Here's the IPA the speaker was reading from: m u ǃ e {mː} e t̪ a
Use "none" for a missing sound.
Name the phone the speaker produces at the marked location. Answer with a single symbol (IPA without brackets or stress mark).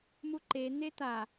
n̪